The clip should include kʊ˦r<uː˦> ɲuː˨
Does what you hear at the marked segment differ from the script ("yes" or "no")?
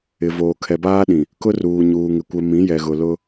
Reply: yes